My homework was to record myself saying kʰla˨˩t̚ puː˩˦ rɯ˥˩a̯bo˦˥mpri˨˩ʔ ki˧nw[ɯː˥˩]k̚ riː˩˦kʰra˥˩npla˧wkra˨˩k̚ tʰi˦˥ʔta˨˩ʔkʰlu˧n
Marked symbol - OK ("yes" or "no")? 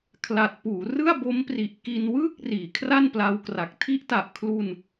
yes